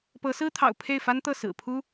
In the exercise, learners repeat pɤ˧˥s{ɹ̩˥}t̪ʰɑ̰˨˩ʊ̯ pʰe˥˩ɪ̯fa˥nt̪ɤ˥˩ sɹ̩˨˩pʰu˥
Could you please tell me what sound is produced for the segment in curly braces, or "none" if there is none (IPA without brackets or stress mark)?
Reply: ɹ̩˥